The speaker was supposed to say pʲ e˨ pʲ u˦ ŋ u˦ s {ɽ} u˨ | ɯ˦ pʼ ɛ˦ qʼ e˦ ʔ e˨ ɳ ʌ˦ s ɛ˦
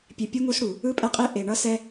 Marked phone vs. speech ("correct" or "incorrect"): correct